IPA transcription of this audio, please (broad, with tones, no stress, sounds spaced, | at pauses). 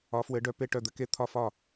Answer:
ɒ˧˥ f w ɘ˧˥ ɖ œ˧˥ p e˥˧ ʈ œ˥˧ d̪ ɘ˧˥ k e˥˧ t̪ʰ ɒ˥˧ f ɒ˥˧